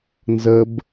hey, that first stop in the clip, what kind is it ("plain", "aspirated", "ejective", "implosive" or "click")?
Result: plain